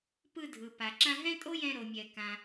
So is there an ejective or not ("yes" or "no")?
yes